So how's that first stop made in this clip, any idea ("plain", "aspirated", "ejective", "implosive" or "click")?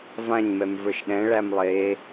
implosive